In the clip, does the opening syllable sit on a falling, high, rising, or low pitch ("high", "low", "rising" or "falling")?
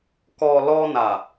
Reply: low